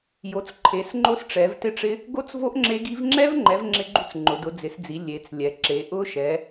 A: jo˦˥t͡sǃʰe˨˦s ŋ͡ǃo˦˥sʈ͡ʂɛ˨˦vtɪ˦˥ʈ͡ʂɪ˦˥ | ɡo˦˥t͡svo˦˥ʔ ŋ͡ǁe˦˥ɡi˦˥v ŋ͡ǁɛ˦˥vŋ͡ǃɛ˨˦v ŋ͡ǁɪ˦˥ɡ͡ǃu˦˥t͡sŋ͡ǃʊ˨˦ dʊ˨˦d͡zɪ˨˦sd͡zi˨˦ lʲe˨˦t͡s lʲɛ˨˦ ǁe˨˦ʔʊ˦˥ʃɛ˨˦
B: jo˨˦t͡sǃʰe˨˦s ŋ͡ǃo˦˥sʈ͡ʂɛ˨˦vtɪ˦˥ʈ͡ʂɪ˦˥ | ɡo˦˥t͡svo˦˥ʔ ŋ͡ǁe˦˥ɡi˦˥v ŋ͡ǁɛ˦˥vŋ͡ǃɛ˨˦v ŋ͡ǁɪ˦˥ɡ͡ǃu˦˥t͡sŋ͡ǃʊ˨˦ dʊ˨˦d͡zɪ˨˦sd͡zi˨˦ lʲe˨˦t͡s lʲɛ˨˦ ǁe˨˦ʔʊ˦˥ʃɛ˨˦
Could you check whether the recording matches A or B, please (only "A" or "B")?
B